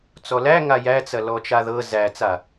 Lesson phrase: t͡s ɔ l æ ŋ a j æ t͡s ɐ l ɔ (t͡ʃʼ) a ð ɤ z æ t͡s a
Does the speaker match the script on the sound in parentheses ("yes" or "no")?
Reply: no